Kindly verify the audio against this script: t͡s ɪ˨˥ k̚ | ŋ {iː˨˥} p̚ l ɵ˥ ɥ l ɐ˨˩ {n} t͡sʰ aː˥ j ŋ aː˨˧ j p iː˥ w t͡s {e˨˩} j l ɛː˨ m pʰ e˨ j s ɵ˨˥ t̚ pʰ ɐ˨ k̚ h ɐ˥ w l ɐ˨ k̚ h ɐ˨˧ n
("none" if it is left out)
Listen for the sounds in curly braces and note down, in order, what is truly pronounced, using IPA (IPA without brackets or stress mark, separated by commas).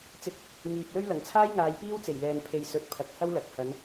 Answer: iː˨, ŋ, e˨˩